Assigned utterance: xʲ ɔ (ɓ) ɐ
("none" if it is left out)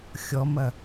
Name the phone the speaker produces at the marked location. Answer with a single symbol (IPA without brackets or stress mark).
m